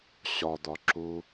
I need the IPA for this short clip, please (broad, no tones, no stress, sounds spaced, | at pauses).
ɕ ɒ d̪ ɒ ǁ u